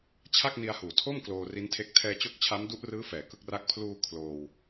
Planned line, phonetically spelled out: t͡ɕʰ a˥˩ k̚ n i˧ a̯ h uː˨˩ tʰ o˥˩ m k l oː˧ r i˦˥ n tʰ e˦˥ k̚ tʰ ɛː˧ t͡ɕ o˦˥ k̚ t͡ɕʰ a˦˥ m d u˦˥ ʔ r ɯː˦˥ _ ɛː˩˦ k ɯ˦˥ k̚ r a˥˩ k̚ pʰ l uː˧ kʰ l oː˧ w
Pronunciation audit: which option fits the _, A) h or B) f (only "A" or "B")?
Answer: B